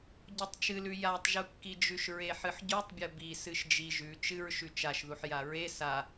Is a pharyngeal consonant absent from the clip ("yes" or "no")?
no